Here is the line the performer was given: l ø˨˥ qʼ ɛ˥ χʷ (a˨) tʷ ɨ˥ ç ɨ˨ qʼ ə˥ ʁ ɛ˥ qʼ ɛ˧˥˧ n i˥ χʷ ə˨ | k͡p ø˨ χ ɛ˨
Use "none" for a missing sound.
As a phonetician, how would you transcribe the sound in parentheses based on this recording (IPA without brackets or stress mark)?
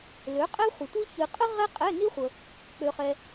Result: ə˨